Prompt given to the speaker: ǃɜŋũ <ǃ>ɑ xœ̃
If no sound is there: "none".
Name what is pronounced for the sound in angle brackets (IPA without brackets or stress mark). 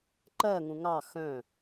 ŋ